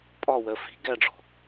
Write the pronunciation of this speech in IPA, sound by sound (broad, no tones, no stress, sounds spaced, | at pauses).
pʼ ɒ w ɜ f i̤ ɡ æ ɖ͡ʐ ɔ̤